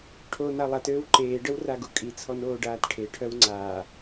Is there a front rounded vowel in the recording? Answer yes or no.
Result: yes